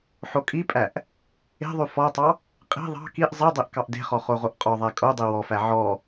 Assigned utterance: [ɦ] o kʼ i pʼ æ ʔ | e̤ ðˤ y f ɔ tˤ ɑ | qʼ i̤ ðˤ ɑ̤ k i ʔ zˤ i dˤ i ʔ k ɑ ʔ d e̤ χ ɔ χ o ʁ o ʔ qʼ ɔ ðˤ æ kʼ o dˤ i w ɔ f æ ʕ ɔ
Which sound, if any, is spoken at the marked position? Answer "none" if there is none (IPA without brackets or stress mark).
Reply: ħ